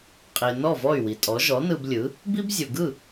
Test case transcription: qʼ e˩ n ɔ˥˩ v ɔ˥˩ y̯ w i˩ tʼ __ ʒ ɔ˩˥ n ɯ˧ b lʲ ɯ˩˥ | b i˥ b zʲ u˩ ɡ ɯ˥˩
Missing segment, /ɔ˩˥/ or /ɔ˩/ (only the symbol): ɔ˩˥